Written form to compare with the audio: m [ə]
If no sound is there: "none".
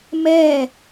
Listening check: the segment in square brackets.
ɛ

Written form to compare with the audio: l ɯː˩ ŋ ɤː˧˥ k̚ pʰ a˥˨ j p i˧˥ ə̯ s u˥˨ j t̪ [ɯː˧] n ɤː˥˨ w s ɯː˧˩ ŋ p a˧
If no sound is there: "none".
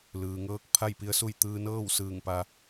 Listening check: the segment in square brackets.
ɯː˧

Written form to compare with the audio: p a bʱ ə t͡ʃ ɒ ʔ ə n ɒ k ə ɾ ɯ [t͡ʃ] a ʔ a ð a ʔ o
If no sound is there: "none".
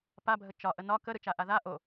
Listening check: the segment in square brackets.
t͡ʃ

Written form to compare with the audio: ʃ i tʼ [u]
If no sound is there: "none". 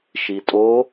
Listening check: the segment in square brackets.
o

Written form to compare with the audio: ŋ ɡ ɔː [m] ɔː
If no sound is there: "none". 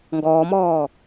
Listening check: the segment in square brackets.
m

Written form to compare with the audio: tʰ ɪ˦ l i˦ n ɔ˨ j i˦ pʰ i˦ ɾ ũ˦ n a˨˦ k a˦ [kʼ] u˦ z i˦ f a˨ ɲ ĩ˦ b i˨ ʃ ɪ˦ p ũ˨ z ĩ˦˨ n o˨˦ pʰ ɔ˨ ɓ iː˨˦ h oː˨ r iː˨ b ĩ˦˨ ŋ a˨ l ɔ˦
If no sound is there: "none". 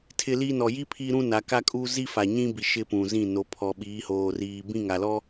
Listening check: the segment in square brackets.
kʼ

